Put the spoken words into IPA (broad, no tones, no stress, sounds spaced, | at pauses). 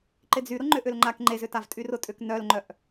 ǃ ɪ d͡z y ɾ ʊ ŋ͡ǃ ʏ ʔ ʏ l ŋ͡ǃ a k ŋ͡ǃ e z ʏ t a v tʼ y r ʊ tʼ ʏ k n œ l ŋ͡ǃ œ ʔ